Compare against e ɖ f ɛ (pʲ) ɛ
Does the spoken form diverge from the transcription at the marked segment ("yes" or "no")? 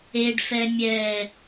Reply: yes